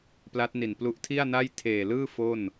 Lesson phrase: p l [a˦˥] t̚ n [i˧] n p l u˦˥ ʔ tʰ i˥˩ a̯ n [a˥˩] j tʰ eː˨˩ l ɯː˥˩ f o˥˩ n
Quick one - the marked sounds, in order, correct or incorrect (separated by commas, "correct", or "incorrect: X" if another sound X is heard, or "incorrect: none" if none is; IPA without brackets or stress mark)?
correct, incorrect: i˨˩, correct